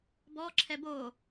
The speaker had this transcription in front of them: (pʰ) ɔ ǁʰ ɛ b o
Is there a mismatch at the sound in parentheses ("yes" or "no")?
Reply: yes